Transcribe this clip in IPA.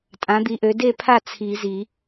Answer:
tʼ ã˩˥ d̪ i˩˥ ʔ ø˩˥ d e˥˨ pʰ a˥˨ t͡sʰ i˨˩˦ z i˨˩˦

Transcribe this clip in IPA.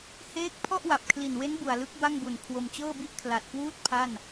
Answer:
h eː˥˩ k̚ pʰ ɔ˥˩ ʔ w a˨˩ p̚ kʰ l i˨˩ n w e˦˥ n b u˨˩ a̯ l ɯ˦˥ k̚ b a˥˩ ŋ b u˨˩ n kʰ w o˧ m t͡ɕ ɤː˥˩ b i˥˩ ʔ kʰ l a˨˩ t̚ k w uː˥˩ t̚ pʰ a˥˩ n

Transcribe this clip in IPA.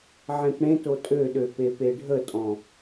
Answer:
ʕ ẽ p ɽ ẽ t o tʼ ø ɗ ø p e p e ɖʱ ə tʼ ɔ̃

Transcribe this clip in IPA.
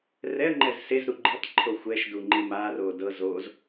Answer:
r ɛ ə̯ ŋ͡ǃ ɛ z s e z ɾ u ɡ͡ǃ e tˤ ǃʰ o xʷ ɛ ʃ d u ŋ͡ǃ i m a r o d ɤ z o z

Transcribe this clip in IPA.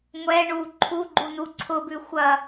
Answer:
ŋʷ ɛ ɳ u ǃʰ u ɡ͡ǃ u n u ǀʰ ʊ b ʉ xʷ ɐ

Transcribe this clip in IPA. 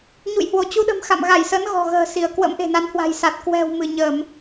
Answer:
ɲ ṵ˧˨ j h w o˧˩ t͡ɕ u˧ ɗ ə̤˨˩ m x a̰˧˨ m ɣ a˧˩ j s ə˨˦ n ɣ ɔ̤˨˩ ɣ ə̤ː˨˩ s i˧˩ ə̯ k w ə̰˧˥ m ʔ e̤˨˩ n a˨˦ n h w a̤˨˩ j s a˨˩ t̚ k w ɛ̤˨˩ w m ɨ˧˩ ɲ ə˧˩˨ m

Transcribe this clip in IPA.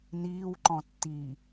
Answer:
n iː w ǃ ɔ̃ tː i

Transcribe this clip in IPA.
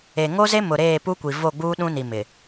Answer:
e˨ ŋ o˦ z e˦ m ʊ˨ ɾ eː˦˨ p u˦ kʷ i˨ v o˦˨ ɡ͡b uː˦ ɗ ũ˦ n i˨ m ɪ˨

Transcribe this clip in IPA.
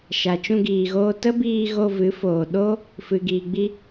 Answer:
ʃ a˨ t͡ʃ ũ˧ ɡ iː˨ ɣ oː˧ t ə˦ b iː˧ ɣ o˧ v ɨ˨˦ f oː˨ ɗ o˦ | f ɨ˨ ɡ iː˨ ɡ͡b i˧

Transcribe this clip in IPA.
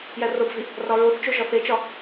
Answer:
j æ r o b v i | r ɒ ɹ o θ t͡ʃ o ʒ ɒ θ e t͡ʃ ɒ

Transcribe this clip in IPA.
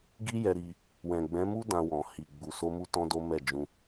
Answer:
ɡ i˦ j ɛ˧ ɾ i˧ | w ɛ̃˨ ɡ͡b ɛ̃˨˦ m u˦ d ã˧ w ɔ̃˨ h i˨ ɡ͡b u˨ s o˧ m u˧ t ɔ̃˦ d o˦ m ɛ˦˨ d͡ʒ ũ˧

